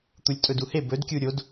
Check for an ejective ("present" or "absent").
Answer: present